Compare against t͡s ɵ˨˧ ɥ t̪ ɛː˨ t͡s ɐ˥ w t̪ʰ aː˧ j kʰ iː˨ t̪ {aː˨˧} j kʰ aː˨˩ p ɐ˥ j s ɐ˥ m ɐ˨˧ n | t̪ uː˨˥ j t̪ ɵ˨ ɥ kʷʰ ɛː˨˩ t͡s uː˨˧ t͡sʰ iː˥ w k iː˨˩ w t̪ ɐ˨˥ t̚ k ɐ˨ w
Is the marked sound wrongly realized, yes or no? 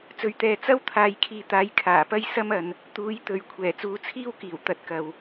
yes